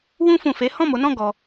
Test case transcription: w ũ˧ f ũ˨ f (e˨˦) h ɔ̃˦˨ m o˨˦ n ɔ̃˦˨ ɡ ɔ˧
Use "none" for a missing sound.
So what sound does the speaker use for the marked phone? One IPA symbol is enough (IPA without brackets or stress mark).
e˨˦